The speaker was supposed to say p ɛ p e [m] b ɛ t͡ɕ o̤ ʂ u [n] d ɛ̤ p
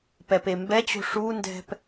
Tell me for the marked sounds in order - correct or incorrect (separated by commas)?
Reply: correct, correct